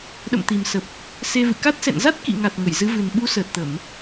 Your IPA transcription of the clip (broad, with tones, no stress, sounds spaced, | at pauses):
ɗ ə̰˧˨ m t̪ i˨˩ m s ə˨˩ p̚ | s e˧ v ɨ̰˧˨ k a˦˥ t̚ s ɛ̰˧˨ n z a˦˥ t̚ k ḭ˧˨ ŋ a˨˩ t̚ ŋ ə˧˩ j z ɨ˨˦ v ɨ˨˩ n ɓ u˨˦ s əː˨˩ t̚ t̪ ə˧˩˨ m